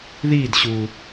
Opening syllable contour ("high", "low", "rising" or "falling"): falling